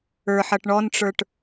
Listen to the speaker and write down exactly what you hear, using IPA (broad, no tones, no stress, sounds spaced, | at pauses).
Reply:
ə˞ ħ ʌ ʈ ɳ ɔ n ʈ͡ʂ ə˞ ʈ